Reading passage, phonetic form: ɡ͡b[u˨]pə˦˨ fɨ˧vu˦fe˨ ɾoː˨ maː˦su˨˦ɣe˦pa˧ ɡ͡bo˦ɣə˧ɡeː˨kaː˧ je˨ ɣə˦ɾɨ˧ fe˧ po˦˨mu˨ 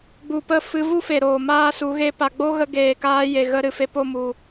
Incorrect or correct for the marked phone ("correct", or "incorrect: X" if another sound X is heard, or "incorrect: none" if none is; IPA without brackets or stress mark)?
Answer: correct